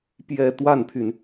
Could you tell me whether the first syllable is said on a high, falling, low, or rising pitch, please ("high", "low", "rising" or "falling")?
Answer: falling